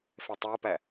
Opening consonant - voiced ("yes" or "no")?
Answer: no